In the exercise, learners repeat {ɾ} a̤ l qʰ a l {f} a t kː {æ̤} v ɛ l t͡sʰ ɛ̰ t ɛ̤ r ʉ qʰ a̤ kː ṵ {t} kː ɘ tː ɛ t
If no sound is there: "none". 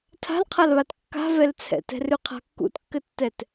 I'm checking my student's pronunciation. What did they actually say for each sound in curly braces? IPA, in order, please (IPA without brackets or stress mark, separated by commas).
tʰ, β, a̤, t